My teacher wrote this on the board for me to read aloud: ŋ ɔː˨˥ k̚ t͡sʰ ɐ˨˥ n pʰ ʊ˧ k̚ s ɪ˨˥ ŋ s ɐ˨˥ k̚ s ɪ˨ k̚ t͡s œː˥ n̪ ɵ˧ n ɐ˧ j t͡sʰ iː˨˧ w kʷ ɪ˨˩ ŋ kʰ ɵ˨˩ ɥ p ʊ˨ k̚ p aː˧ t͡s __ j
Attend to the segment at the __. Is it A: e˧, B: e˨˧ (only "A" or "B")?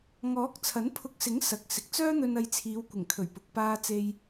A